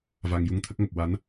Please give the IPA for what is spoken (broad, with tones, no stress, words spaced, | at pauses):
va˧ŋju˧˥ŋt̪ʰə˦˥k̚ ŋə˨˩k̚ wa˧˥n